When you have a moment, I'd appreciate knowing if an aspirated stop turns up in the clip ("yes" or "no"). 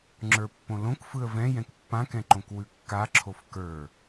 yes